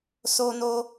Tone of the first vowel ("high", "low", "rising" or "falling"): high